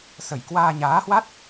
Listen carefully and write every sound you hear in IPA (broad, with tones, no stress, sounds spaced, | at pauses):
s ə˧˩ j k w aː˧ ɲ aː˨˦ h w a˦˥ t̚